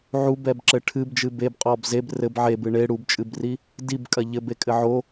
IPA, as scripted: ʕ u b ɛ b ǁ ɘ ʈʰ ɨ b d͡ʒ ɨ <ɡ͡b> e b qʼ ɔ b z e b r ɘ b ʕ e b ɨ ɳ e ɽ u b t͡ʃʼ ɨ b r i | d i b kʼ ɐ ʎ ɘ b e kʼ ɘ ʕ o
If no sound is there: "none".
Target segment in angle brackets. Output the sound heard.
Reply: b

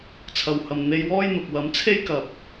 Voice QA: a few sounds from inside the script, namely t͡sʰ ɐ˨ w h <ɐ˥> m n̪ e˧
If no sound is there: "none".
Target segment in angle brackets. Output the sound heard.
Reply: ɐ˨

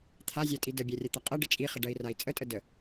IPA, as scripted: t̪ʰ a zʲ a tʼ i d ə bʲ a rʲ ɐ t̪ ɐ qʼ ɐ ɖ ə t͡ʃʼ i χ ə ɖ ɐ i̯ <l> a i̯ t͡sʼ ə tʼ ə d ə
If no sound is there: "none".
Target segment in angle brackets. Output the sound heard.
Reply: r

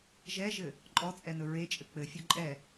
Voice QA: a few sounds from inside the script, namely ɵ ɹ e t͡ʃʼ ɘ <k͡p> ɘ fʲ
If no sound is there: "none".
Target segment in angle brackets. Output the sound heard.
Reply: k͡p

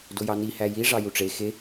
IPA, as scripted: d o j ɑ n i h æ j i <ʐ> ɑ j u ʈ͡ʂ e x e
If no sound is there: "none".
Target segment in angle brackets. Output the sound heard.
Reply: ʐ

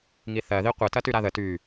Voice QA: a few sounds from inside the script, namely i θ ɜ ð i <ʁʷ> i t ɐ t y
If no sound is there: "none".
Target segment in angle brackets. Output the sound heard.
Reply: qʷ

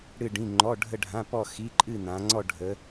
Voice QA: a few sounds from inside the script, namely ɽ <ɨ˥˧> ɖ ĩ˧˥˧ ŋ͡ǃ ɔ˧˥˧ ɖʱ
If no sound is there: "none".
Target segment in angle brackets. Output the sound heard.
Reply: ɨ˥˧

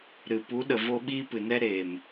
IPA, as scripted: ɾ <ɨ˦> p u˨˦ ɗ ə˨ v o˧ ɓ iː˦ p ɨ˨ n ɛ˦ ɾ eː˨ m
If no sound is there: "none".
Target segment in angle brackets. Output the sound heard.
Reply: ɨ˨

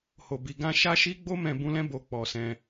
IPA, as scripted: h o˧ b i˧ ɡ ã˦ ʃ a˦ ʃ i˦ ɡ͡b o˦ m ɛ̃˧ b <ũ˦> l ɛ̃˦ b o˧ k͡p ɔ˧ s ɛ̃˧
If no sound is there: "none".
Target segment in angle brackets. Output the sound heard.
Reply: ũ˦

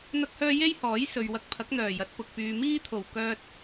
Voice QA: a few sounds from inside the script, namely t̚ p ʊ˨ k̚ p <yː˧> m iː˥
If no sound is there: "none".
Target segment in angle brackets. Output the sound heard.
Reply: yː˧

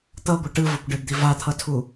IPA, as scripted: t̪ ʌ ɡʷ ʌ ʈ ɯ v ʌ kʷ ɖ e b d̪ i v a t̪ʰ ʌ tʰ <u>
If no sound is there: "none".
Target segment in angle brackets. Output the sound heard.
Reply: u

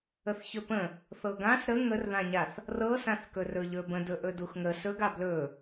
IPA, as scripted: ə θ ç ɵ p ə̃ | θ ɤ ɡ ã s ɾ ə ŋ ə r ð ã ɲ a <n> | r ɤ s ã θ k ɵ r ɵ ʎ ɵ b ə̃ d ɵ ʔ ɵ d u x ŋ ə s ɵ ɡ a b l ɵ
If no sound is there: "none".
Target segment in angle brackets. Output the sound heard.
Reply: θ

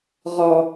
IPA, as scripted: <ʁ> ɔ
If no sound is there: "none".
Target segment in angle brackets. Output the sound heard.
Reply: ʁ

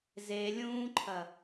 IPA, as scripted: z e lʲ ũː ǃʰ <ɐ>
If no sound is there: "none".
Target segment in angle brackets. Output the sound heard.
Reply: ɐ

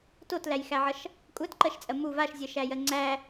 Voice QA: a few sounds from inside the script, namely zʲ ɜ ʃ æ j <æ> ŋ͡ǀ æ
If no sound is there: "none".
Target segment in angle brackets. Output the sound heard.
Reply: ɜ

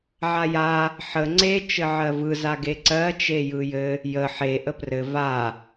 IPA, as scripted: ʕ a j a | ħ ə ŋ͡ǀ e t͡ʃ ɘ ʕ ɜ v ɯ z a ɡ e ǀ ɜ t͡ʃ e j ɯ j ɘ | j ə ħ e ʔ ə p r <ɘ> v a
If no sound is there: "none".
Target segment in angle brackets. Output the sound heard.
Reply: ɘ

